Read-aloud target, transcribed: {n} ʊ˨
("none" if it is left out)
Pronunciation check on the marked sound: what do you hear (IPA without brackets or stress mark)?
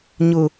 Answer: ɲ